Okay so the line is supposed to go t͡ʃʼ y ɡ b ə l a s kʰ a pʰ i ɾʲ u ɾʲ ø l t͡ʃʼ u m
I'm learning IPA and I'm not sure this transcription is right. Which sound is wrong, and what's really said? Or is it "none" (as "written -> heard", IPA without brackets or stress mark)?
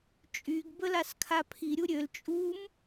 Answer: none